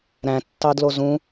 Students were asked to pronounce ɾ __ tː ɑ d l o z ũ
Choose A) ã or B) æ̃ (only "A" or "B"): B